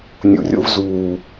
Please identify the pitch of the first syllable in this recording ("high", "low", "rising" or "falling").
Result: low